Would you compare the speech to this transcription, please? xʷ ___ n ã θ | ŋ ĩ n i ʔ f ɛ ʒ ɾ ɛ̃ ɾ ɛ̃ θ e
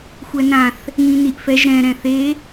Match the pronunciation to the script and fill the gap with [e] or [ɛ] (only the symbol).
ɛ